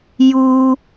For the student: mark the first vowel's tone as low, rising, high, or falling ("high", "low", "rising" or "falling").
high